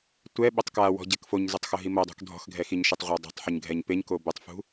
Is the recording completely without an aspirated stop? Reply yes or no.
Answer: yes